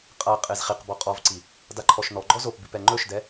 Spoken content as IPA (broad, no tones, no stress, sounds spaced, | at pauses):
qʼ a qʼ e z χ i q b ɔ qʼ ɔ v ǀ i | d a ǃʰ ɔ ʃ n ɔ ɡ͡ǃ ɔ z o p b i p ɛ ŋ͡ǃ ɵ ʃ d ɛ